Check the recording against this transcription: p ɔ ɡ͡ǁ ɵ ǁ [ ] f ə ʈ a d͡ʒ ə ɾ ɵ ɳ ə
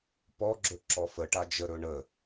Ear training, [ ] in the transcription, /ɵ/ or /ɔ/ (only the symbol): ɔ